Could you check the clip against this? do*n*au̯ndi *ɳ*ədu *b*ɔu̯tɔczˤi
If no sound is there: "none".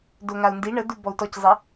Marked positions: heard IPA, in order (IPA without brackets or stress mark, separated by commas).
ŋ, ɳ, b